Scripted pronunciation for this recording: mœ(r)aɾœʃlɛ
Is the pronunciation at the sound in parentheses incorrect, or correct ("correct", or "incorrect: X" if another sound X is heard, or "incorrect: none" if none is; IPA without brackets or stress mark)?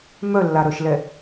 incorrect: lː